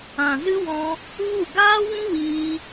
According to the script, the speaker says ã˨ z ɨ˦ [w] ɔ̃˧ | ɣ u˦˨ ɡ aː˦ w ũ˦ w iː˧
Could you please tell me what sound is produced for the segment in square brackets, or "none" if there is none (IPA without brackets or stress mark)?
w